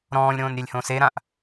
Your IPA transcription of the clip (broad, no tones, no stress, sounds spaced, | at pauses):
ɾ ɔ̃ː lʲ ɾ õː n ɾʲ ɛ lʲ h õ s e ɾ ã ʔ